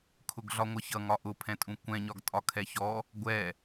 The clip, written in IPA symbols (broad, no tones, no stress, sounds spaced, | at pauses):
kʰ ʊ ɡ ɮ ɒ ŋʷ ʌ ç ʌ ŋ ɒ ʔ ʊ pʰ ɛ̃ tʼ ũ kʷ ɛ̃ ɲ ɒ ɡ tʼ ɒ kʰ ɛ ç ɔ | ɡʷ ɛ